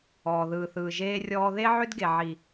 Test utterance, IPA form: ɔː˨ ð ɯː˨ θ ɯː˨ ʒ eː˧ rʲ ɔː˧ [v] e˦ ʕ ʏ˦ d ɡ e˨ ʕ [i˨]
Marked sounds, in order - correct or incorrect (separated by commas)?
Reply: incorrect, correct